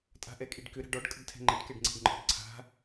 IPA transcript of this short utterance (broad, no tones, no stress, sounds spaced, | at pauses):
tʼ a̤ ʔ ɛ kʼ i ɖ k ʏ ɾ a̤ ɖ ɔ ɖ kʼ ə ɖ tʰ ɛ̤ ŋ͡ǃ ə ɖ k ɛ ɖ ŋ͡ǀ e̤ ɖ ŋ͡ǃ ɔ̤ ɖ ǀʰ a̤